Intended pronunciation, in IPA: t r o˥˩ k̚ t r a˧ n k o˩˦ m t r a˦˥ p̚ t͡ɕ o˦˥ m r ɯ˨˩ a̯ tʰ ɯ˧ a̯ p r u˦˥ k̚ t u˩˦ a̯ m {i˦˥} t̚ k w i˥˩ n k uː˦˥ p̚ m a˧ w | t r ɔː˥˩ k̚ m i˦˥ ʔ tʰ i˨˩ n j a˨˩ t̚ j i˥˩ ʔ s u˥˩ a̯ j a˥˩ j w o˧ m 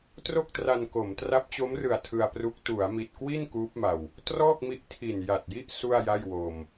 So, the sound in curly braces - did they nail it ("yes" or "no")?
no